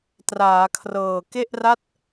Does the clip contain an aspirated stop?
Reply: yes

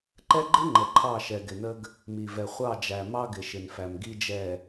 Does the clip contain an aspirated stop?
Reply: yes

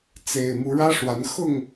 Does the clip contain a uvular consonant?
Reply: no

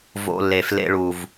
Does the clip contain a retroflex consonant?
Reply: yes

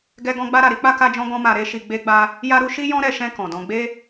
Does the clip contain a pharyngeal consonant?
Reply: no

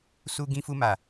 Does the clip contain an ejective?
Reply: no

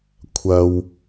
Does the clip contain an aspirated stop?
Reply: yes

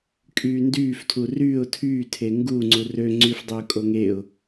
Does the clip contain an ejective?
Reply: yes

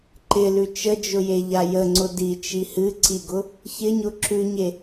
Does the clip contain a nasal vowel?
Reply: no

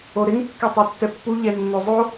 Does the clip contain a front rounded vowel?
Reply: yes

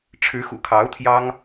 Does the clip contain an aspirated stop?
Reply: yes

